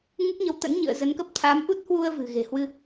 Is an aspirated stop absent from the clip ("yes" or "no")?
no